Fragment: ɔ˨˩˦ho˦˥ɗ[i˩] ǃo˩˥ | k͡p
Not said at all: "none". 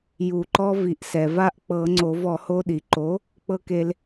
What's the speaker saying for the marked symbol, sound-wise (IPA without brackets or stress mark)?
i˩